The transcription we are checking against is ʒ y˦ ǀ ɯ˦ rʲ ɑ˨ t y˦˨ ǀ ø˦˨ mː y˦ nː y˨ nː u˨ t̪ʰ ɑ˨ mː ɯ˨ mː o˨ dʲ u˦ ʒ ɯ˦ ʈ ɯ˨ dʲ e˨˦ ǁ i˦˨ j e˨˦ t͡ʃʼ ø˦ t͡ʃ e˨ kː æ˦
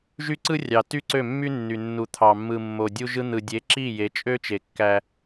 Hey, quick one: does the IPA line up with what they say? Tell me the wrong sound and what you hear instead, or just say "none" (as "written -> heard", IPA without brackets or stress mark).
ʈ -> n̪